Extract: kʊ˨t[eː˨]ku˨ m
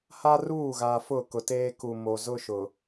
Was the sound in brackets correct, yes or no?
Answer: no